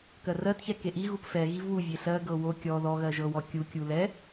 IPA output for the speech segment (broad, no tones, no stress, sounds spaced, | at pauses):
k ɜ r ɜ t ç ɛ k e ʔ i ɣ u p f ɛ ɣ i v w u vʲ e ɬ ɜ ɡ ɤ w o kʲ ɔ ð ɔ ɣ ɜ ʒ ɤ w ɔ kʲ u kʲ u l ɛ